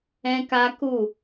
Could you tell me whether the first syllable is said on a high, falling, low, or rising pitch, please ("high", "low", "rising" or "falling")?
high